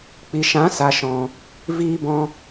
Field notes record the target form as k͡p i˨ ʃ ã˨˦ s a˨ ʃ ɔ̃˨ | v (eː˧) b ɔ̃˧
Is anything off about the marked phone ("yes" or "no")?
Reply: yes